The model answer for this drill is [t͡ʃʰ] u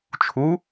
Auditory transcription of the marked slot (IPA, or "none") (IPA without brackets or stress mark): t͡ʃʰ